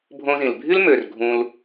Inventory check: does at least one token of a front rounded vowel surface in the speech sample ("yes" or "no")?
yes